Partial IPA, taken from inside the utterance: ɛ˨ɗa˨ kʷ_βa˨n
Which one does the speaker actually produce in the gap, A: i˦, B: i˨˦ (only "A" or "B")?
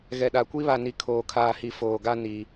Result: A